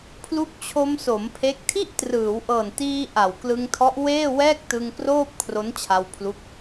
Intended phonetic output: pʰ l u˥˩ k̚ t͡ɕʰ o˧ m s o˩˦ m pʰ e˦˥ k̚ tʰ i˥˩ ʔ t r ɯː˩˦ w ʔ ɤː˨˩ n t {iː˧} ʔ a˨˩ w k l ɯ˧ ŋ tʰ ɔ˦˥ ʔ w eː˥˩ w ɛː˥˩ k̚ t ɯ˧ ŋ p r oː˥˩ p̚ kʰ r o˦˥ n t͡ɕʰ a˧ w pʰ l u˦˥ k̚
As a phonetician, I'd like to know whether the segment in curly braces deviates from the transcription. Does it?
no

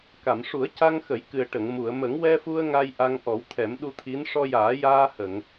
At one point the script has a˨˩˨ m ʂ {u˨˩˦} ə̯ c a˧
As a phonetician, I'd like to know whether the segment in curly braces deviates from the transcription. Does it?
no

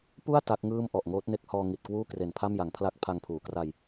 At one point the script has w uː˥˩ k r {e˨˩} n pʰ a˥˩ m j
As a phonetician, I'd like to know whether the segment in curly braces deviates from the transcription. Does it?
no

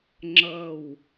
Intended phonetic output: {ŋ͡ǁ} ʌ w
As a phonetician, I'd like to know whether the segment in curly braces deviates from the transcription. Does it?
no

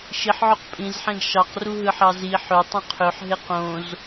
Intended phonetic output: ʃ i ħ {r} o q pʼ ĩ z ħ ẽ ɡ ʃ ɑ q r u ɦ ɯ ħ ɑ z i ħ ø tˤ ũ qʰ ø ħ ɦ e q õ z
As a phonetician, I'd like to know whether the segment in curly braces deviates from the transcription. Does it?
yes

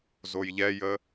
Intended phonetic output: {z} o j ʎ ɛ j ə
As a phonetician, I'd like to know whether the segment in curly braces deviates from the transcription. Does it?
no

